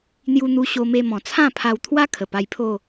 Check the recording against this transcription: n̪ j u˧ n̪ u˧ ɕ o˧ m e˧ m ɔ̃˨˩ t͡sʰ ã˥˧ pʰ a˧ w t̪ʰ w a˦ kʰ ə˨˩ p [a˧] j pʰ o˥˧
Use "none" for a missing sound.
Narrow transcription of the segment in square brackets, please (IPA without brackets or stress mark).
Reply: a˧